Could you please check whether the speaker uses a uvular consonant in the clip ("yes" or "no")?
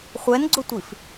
yes